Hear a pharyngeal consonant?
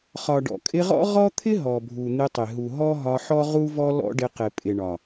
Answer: yes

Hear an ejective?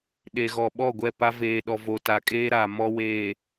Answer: yes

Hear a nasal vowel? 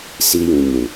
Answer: yes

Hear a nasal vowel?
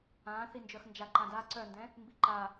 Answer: yes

